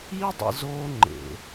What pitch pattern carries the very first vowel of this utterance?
high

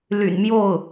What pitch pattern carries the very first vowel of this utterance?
low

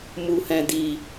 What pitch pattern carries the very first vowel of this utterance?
low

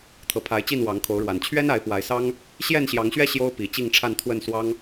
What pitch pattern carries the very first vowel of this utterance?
rising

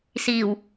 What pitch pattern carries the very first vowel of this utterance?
low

